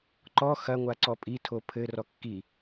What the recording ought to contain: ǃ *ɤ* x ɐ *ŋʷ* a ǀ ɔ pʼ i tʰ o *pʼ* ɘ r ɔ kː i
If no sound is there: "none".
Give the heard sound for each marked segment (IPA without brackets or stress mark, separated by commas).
ɔ, ŋʷ, pʰ